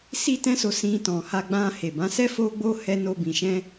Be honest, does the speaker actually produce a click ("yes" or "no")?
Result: no